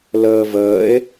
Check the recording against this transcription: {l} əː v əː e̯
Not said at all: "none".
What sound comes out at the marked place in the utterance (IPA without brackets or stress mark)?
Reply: l